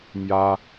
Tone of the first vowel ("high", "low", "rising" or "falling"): high